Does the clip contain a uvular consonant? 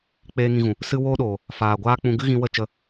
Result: no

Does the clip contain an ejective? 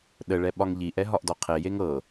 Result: no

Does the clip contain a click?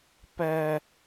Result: no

